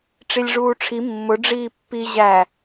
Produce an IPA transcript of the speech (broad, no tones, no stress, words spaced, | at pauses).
ʈ͡ʂilʲʐuːʈ͡ʂʰi mːʊ ɖ͡ʐiːpːi ʑæ